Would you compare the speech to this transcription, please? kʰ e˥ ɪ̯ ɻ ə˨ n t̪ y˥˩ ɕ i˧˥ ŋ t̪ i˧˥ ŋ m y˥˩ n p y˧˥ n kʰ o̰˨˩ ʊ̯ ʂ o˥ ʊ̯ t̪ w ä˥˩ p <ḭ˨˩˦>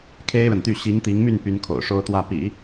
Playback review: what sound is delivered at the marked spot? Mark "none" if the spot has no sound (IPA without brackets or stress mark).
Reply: ḭ˨˩˦